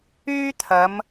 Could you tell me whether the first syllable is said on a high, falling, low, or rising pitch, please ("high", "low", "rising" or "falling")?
high